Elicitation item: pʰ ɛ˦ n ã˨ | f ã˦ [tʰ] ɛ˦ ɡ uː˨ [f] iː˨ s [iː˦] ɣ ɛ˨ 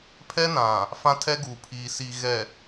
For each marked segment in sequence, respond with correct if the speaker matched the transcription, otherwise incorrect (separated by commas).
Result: correct, incorrect, incorrect